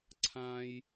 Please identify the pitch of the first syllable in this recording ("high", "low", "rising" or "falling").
low